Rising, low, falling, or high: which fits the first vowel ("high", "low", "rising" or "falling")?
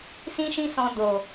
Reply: high